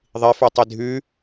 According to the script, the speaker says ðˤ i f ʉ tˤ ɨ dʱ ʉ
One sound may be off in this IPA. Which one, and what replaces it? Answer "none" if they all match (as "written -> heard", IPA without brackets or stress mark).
ɨ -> i